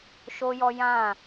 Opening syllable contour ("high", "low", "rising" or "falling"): high